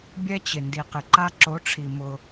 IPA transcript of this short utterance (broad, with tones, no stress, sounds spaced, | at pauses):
bʲ ɛ˦ t͡ɕ ɪ˨ n d i˨ q ɪ˨ ǃ a˦ ǁ o˨˦ ʈ͡ʂʰ i˨ m ʊ˦